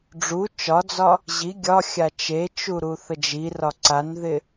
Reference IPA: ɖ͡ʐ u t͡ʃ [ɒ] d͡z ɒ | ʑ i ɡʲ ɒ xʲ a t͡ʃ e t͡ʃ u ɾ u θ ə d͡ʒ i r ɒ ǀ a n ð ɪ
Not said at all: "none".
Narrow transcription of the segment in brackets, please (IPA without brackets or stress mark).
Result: ɒ